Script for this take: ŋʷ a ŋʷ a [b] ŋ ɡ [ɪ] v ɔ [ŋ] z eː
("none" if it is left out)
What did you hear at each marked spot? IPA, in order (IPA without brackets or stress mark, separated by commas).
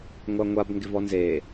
b, ɪ, n